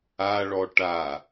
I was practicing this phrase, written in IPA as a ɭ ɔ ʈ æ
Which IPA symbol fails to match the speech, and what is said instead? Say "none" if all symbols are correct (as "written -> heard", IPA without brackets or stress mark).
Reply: æ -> a